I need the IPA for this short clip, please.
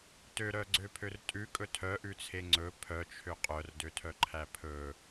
t ø ɾ œ ɡ͡ǀ ø pʰ ø r tʼ ʉ kʼ ɵ tʰ œ ʔ ʉ t͡sʰ e ŋ͡ǀ ɵ pʰ œ t͡ʃʰ ø qʼ œ r d ø tʰ œ ǃʰ æ pʰ ɵ

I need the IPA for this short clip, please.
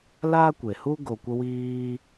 l aː˦ kʷ e˨ h u˦ ɡ o˨ kʷ ə˧ w iː˧

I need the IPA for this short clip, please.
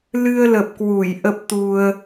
l ɨ˧ ə̯ l ə˨˩ p̚ k w u˧˩ j ʔ ə˦˥ p̚ t̪ u˧ ə̯

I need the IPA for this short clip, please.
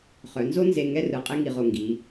χ œ˩˧ n z o˥ n z e˥˧ ŋ ɛ˥ r ɯ˧˩ qʼ e˥ ŋ i˧˩ ʁ o˧˩ ŋ ɡ i˩˧

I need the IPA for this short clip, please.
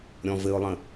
ɾʲ ɔ̃ v ɘ ʊ̯ lˠ ə̃

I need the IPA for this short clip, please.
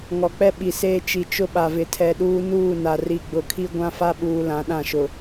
ŋ ɔ˨ k͡p ɛ˦ ɓ i˨ s eː˦ t͡ʃ i˨ t͡ʃ ʊ˦ ɓ a˨ v ɪ˨ tʰ ɛ˨ ɗ uː˦ n uː˦˨ n a˨ r i˨ ɡ͡b ʊ˨ kʰ i˦ ɡʷ ã˦ f a˦ ɓ uː˨ l ã˨˦ ɗ ã˦˨ ʃ ʊ˨

